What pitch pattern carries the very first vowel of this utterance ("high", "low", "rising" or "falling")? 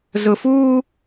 low